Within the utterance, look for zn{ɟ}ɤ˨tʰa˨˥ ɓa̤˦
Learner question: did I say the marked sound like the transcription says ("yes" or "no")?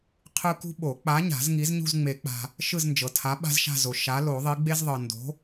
no